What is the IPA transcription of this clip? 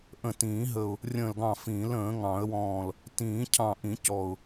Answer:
ʔ ə̃˧˩ t ĩː˨˩˦ ɦ ə˧˩ ʊ̯ | rʲ ə̃ː˧˩ l ɡ ɑ̃˧˩ f ĩː˨˩˦ l ə̃ː˨˩˦ ŋ ɑ̃˨˩˦ ə̯ w ɔ̃ː˧˩ l | t ĩː˨˩˦ cʰ ɑ̃˧˩ ʔ ĩ˨˩˦ c ɔ˧˩ ʊ̯

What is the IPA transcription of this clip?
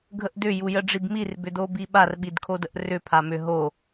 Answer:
ɡʱ ə ʔ d ʏ j u j ə ɖ͡ʐ i b m i r b ʏ d o b i ɓ a r ɓ i d kʰ o d ə ʔ r ʏ pʰ a m ʏ ɦ o

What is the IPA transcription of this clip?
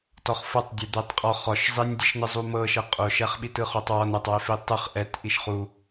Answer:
t ɔ χ f ɤ tˤ dʲ e d̪ e tˤ qʼ ɔ χ ɔ ʃ zˤ i nʲ dʲ ɛ ʃ n ɯ zˤ u m ɤ ʃ ɤ qʼ o ʃ ɛ χ ɓ i t ɯ χ o tˤ w ɔ n ɛ tˤ w e f i tˤ ɯ χ ʔ ɛ t ʔ i ʃ χ u

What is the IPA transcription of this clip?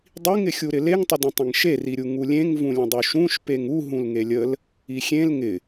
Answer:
dˤ i ŋ ɪ xʲ u ɾ ɪ l e ŋ tˤ ə d ə̃ tˤ ə̃ ŋ ʃ e r i ɾʲ u ŋ u lʲ ẽ ŋ v ũ lʲ ə̃ dˤ u ʃ ũ ʃ p e ŋ u ɦ ũ l ŋ e lʲ ə l | i xʲ ẽ l ŋ ɪ

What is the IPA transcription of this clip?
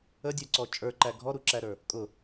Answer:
ə dʲ ə˞ ǀ ɔ t͡ʃʼ ə˞ ǃ æ ɡʱ ɔ ɾ u ǁ æ ɾ ə˞ | kʼ ʊ

